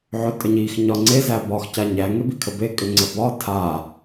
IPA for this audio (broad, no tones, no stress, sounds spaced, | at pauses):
ʕ ʏ tʼ ə ɲ i x ɲ ɒ ŋ͡ǀ e z æ b ɒ x c a ɲ æ ŋ e b i kʰ ə b e kʼ ʏ ŋ͡ǀ ə b ɒ tʰ a